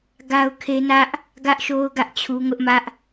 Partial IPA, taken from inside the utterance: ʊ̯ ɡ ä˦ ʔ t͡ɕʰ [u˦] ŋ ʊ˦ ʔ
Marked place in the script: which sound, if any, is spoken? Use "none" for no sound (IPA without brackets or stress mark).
u˦